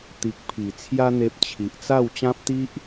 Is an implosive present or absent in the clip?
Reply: absent